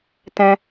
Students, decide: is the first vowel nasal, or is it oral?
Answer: nasal